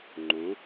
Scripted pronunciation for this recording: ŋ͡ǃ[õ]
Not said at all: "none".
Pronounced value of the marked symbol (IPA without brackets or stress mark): õ